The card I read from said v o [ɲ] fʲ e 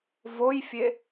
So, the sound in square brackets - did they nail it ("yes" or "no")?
no